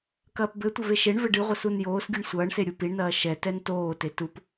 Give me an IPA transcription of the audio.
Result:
kɐːpbɘtʷɐv eʃeɳvɘ ɖɨʁʷas unjoːsɡʲuɳ sʷɐːɳse ɾʲupiɳnɐː ʃɛtɛn toːte tup

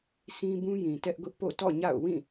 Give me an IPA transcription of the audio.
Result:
sʰĩ˦bũ˦jĩ˨ tɛ˦ʔɡʊ˦ʔpo̰˦˨ tɔ̰˦˨ɲa̰˦˨ʊ̯ wĩ˦˨

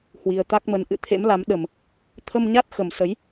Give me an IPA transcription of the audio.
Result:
hwi˨˩ə̯t̪a˦˥k̚mə˨˦n ʔɨ̰˧˨t̪ʰḛ˧˥mla˨˦m ɗə˨˩m | t̪ʰə˧mɲa˦˥t̚ xə˨˩msə˨˦j

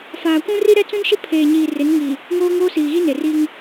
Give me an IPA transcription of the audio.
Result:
faː˨kʷũ˦ri˦ ɾɛ˦t͡sũ˦nʃɪ˦ pʰeː˨ɲiː˨ rɪ˨˦nŋi˨ | ŋoː˦ŋoː˦ siː˨ɣi˦ ne˨ri˦ŋ

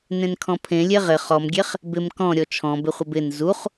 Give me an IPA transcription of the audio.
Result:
nẽnkʰɔ̃pʰẽ lʲeʁɪ χɔmɡʲeχ | bɪm kɔ̃ ɾʲɔt͡ʃʰɔ̃bɪχʷɪb ɪn zuχ

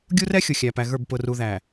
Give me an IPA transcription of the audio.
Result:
ɡʲu˦rɛ˦ xʲʊ˨xʲæ˨pæ˨ɣə˞˦˨b pʊ˨ru˨ ðæ˨

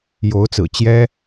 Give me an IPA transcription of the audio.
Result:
jo˧˥ʊ̯t͡sɹ̩˨˩ t͡ɕjɛ˥

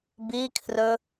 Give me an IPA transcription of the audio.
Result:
bikʰrɵ

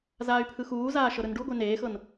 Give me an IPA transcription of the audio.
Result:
zaːy̯pʰɯxuːzaː ʃɤɾɯnɖuɡʷe neːxɤn

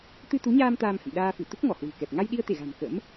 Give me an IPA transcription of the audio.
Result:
t̪ɨ˧ t̪u˨˦ɲaː˧m t̪aː˧mhə̰˧˨mɗaː˧fɨ˧˩ t̪u˦˥k̚ŋɔ˧˩ hwɨ̤˨˩kɛ˨˩p̚ ŋa˧jɗi˧ə̯t̪e˧˩ɣa̤˨˩m kə̰˧˥m

